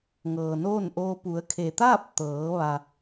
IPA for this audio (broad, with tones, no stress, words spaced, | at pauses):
ŋɤː˩noː˥˨nʔoː˧ pu˩˧ə̯kʰe˩t̪aː˥˨p̚ t̪ɤː˩˧ ʋa˩